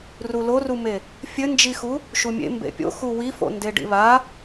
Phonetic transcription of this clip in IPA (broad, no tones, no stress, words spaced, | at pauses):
rulorume | fʲɘnd͡ʒixu | ʃumʲḛ mbḛpʲo̰ xuwifo̰ ndeɖḭβa